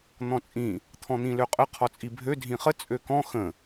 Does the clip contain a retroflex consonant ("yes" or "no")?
no